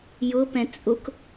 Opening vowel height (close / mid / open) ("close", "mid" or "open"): close